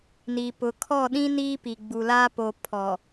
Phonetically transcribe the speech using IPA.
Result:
n i˨ p ʊ˨ kʰ ɔ˦˨ ɗ ĩ˦ n iː˦ p i˨ ɡ͡b u˨ l aː˦ p o˨ pʰ ɔ˨

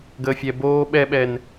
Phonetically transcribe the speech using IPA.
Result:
ɡ əː fʲ ɛ b oː ɓ ɛ ɓ ɛ n

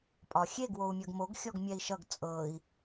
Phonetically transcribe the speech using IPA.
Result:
pʼ ɒ xʲ e ɡ w o u̯ mʲ ɐ ɡ m o ɡ xʲ ɔ ɡ mʲ ɛ i̯ ʃ ʌ ɡ t͡sʼ ɤ i̯

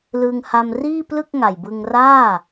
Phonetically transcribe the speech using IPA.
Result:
l ɯː˧ ŋ h a˧ m r iː˥˩ p l ɯ˥˩ k̚ ŋ a˨˩ j b ɯ˧ ŋ r aː˥˩

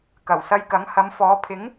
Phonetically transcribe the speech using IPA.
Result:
k ɐ˨˩ w s ɐ˧ j k ɐ˨˥ ŋ h ɐ˨˧ m f ɔː˨˧ pʰ ɪ˨˥ ŋ

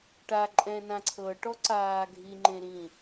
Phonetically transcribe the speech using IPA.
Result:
ʈ a ǃʼ ɛ̃ n ã ǀʰ ɤ ʈ ɔ ǀ aː ɡʱ i ŋ͡ǃ ẽ ɾ ĩ

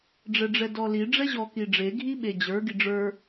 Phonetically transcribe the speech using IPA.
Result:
ɖ͡ʐ ɛ ɖ͡ʐ ɛ d ɔ l i ɖ͡ʐ ɛ ʑ ɔ k i ɖ͡ʐ e ɡʱ i ɓ e d͡ʑ ə˞ ɡ i ɖ͡ʐ ə˞

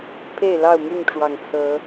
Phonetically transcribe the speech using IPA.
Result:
pʰ e˥˨ ɪ̯ l ɑ˥˨ ʊ̯ m y˥˨ n ʈ͡ʂ w ɑ˨˩ ŋ t͡sʰ ɤ˨˦

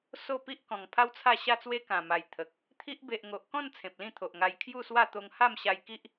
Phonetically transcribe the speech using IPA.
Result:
s o˥˧ p i˦ ʔ k ɔ̃˨˩ ŋ pʰ a˦ w t͡sʰ a˥˧ ɕ a˥˧ t͡s w e˦ k ã˨˩ m a˨˩ j t̪ʰ ə˨ k̚ | t̪ʰ i˦ ʔ b e˨ ʔ ŋ o˨ ʔ k ɔ̃˥˧ n t͡sʰ ẽ˨ p̚ l ĩ˥˧ t̪ʰ o˨ ʔ ŋ a˧ j kʰ j u˥˧ s w a˥˧ t̪ o˧ ŋ h a˥˧ m ɕ a˧ j k i˦ ʔ

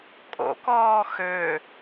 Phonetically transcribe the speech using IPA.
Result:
kʼ o̰ k ɔː x ø

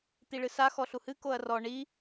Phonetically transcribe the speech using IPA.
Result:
t̪ i ɭ ɨ s a x ɔ ɬ u h ɨ k o ɐ̯ r ɔ ɳ i

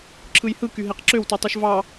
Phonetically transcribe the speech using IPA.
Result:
ǁʰ ɯ j h ɯ k y ɦ e q ǁ ø w t u tˤ o ʃ v ɑ

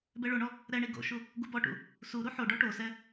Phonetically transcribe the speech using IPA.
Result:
b ɛ ɭ o ɳ ɔ | ɾ ɛ ɳ i ɡ o̰ ʃ u | ɡ u b ɔ ʈ ṵ | s u ɾ u ħ o ɖ ɔ ʈ o s ɛ

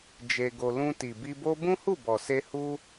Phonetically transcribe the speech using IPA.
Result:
d͡ʒ e˧ ɡ o˧ l ũ˧ t i˨ b i˧ b o˦ b ũ˦ h u˦˨ b ɔ˨ s e˧ h u˦

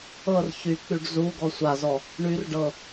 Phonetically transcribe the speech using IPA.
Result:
ɤ r ç y k͡p y ɖ z u ɡ ɔ sʷ a z ɔ | ɳ y r ɖ ɤ

